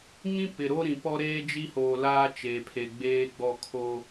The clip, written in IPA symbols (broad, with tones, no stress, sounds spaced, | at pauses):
ŋ ĩ˦ p ɪ˨ ɾ o˦ ɾ ĩ˨ p ɔ˦ ɾ eː˦ d͡ʒ i˦ h oː˨ l aː˦ t͡ʃ e˨ pʰ e˨ ɡ͡b eː˦ ɡ͡b ɔ˦˨ kʰ o˦